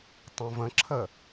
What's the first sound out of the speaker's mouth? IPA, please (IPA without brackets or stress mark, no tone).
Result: tˤ